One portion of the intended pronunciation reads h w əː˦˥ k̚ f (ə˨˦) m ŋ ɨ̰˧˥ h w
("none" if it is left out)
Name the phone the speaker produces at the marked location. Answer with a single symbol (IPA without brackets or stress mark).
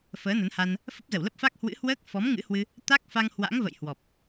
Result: ɔ˨˦